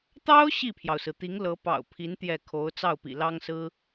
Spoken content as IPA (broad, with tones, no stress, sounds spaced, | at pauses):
t̪ ɑ˥ ʊ̯ ɕ i˥˩ pʰ j ɑ˩ ʊ̯ s ɹ̩˩ t̪ i˧˥ ŋ l ɤ˧˥ p ɑ̰˨˩ ʊ̯ pʰ i˧˥ n t̪ j ɛ˥˩ kʰ o˧˥ ʊ̯ t͡s ɑ˥˩ ʊ̯ p ḭ˨˩ l ɑ˥ ŋ s ɹ̩˥